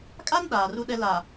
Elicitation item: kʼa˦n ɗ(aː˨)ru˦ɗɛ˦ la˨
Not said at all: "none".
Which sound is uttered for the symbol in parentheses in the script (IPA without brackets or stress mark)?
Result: aː˨